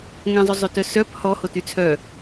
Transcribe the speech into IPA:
ŋ ɛ̃ zˤ o zˤ ø t œ s œ p h ɔ h o t y t͡sʰ œ

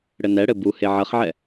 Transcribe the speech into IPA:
ɽ ɘ n ɛ ɽ ɘ b u h e ʕ ɐ χ ʕ ɛ

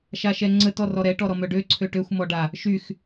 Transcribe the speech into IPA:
ʃ a ʃ ɛ ŋ͡ǀ ə t ɔ r ɔ ɾ ɛ ʈ ɔ ɾ ɔ m œ ɖ ø ǀʰ ø ʈ ø xʷ m ɔ ɖ a | ʃ y x

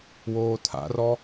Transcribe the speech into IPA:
w oː tʰ a̰ r ɔ

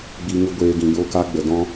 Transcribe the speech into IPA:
ɡ͡b i˧ ŋ ɨ˧ ɡʷ eː˧ ɡ ĩ˨ j o˧ k a˧ ɡ͡b ə˨ d ɔ̃˦

